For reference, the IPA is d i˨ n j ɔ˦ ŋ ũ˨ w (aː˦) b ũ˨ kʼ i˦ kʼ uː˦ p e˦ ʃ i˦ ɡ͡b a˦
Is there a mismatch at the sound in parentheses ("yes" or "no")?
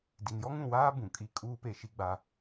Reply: no